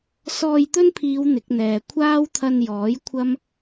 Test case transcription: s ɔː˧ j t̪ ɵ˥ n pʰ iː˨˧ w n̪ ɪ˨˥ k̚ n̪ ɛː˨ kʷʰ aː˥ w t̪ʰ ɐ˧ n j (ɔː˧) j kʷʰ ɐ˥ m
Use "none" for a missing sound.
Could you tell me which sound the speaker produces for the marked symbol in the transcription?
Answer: ɔː˨˥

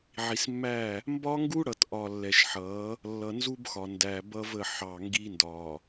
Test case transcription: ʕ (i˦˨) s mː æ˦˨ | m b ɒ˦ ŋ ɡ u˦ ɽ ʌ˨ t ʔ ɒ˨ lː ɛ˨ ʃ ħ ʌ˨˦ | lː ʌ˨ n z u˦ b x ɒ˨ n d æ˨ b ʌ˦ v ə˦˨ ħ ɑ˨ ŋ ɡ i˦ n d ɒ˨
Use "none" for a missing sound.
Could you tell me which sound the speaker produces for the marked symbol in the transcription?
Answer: i˨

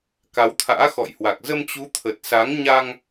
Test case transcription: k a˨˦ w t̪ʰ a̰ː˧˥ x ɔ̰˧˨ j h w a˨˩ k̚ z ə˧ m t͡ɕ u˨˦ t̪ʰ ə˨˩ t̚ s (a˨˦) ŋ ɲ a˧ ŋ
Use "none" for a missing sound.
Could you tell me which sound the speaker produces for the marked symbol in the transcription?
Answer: a˨˦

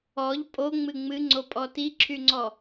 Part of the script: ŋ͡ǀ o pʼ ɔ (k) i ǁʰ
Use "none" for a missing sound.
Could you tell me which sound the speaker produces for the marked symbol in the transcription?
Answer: t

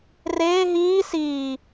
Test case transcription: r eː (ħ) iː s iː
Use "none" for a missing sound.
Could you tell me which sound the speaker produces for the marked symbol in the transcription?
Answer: ɦ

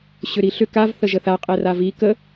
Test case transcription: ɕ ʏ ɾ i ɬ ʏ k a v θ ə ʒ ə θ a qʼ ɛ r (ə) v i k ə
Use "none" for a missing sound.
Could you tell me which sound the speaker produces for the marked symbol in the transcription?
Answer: a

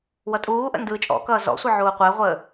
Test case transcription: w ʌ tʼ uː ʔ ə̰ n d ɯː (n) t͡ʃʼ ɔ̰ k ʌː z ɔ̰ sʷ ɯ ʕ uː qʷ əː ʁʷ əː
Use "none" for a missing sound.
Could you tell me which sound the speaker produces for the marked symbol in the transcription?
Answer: none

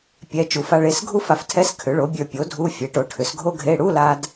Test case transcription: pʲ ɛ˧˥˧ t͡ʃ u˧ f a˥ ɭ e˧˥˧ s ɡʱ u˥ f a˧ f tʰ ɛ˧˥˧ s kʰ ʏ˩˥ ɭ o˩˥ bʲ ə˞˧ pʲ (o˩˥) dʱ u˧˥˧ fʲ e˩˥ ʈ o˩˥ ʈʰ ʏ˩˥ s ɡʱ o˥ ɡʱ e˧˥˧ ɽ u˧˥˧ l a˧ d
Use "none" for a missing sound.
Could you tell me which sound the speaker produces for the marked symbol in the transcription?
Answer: o˩˥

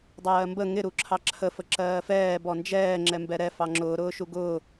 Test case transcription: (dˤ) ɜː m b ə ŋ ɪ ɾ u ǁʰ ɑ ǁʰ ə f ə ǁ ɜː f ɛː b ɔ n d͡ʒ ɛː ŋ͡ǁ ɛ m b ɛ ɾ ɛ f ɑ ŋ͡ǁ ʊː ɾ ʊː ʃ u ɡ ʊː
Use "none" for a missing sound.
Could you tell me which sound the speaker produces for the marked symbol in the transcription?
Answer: dˤ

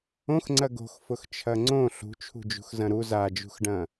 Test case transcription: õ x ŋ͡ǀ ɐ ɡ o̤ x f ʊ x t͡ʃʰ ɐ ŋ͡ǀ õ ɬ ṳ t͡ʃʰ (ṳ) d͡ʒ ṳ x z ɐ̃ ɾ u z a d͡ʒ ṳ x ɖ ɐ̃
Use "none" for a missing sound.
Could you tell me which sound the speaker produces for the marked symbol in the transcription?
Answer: ṳ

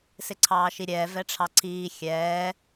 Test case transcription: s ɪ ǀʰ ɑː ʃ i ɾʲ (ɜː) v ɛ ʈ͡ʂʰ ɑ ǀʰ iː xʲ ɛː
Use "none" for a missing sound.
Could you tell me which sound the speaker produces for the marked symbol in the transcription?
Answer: ɛː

